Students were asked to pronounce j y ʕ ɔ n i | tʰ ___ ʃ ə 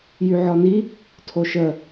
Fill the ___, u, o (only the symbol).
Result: o